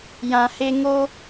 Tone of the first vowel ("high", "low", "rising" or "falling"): low